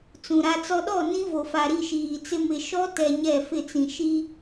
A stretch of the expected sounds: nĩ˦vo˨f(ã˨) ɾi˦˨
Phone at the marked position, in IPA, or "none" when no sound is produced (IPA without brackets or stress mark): a˨